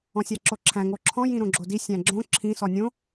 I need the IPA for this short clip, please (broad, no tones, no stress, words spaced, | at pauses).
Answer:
ɔ̃sʲaǁoǁʰæ̃ ŋoǁʰɔ̃ jĩɾõɡ͡ǁodi sʲæ̃ɡ͡ǁõ ǁʰĩ sɔnʲõ